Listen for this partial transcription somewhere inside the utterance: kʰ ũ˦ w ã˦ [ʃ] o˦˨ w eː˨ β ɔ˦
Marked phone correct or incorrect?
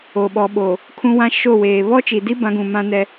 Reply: correct